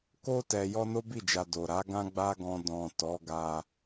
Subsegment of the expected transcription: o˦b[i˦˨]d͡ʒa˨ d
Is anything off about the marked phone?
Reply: no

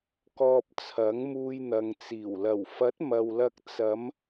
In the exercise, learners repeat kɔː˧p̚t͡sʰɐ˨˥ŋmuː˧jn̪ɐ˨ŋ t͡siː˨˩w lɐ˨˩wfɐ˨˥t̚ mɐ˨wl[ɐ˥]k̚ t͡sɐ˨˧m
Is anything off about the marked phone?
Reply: yes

